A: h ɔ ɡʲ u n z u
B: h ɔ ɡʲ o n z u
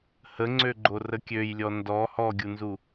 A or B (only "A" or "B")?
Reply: A